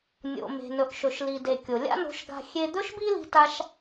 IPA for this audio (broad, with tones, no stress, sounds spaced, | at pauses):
nʲ o̰˩ m e̤˩ n ɵ˩ ʔ ʃ ɵ˩ ʃ l i˩ d e˩ kʲ o˩ lʲ a̰˥ n o̤˧ ʃ ɡ a̤˧ xʲ e˧ d̪ ɵ˥ ʃ b i˥ l i̤˧ t a˧ ʃ